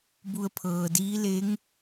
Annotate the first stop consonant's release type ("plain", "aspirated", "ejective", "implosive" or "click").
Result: plain